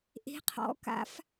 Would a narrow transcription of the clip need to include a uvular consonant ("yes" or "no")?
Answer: yes